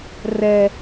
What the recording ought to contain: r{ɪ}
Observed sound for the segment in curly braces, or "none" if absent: ɛ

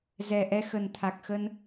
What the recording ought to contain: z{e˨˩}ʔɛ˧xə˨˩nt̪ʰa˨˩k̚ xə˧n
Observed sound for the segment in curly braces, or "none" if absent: ɛ˨˩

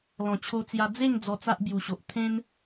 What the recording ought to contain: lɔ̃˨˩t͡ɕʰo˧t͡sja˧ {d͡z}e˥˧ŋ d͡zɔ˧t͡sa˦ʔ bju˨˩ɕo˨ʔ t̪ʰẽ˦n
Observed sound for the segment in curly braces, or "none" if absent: d͡z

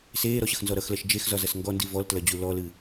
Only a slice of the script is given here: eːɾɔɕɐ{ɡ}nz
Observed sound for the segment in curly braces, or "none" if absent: x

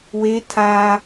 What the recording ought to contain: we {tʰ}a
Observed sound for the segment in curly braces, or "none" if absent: tʰ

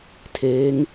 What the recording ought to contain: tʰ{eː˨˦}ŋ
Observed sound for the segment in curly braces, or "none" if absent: eː˨˦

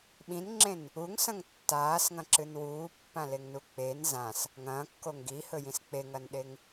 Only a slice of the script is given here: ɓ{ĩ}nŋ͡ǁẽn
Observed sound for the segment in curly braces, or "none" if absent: ĩ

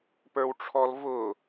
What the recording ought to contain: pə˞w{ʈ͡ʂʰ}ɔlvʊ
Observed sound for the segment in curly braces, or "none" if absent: ʈ͡ʂʰ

